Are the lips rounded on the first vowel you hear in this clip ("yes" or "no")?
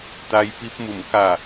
no